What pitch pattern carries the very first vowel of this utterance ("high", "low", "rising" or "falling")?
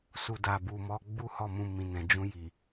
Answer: low